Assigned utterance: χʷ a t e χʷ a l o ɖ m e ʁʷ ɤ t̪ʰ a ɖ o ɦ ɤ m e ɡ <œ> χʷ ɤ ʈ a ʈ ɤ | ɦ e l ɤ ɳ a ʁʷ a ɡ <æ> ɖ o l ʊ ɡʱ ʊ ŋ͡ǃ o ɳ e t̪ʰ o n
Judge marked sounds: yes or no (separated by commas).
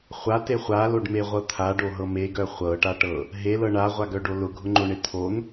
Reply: yes, no